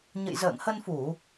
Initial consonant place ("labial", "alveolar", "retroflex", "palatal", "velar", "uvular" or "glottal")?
palatal